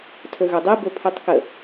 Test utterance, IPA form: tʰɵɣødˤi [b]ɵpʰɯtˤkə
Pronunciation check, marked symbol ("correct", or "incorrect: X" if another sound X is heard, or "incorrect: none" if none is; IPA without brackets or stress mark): correct